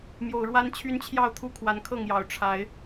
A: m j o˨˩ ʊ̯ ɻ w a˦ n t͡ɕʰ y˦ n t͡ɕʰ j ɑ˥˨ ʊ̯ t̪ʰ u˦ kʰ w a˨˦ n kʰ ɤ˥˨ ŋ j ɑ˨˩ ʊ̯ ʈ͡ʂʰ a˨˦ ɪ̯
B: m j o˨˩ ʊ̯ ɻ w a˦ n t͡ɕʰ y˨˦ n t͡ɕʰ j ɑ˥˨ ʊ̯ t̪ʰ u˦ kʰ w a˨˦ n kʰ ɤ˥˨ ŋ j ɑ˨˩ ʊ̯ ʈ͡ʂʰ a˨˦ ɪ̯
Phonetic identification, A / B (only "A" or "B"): A